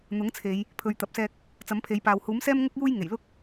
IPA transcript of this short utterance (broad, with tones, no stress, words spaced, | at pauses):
n̪ʊ˨˥ŋt͡sʰe˨˧j | pʰɵ˨ɥt̪ɐ˨p̚sɛː˧k̚ | t͡sɐ˨˥mpʰe˨˧jpaː˨w huː˨˥msɛː˥mŋʊ˥k̚ juː˥jŋe˨˩j lʊ˥k̚